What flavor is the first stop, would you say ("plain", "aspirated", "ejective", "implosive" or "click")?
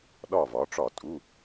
implosive